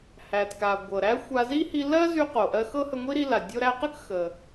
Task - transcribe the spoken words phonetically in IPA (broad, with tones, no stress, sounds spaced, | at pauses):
h æ˩ t k a˩ ɡʷ ɤ˩ ɾ æ˥ xʷ a˧ z i˥ h i˧ l ɜ˥ z y˧ q o˩ ʔ ɜ˧ x ɤ˥ h ə˧ ŋʷ i˥ ɾ i˧ l a˩ dʲ o˧ ɾ æ˧ q ə˥ k x ə˩